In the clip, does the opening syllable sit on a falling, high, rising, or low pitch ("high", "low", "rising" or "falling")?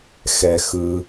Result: low